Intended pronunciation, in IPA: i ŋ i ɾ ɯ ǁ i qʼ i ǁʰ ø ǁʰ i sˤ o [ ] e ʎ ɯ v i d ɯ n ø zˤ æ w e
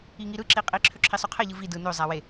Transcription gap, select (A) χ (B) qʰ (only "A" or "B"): B